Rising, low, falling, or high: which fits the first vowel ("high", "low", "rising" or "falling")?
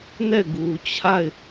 falling